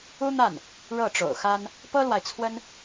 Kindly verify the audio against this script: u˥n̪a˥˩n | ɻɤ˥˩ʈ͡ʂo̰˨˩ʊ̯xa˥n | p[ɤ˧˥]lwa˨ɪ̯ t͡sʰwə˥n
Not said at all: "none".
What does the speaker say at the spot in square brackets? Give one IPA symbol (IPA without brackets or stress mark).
ɤ˥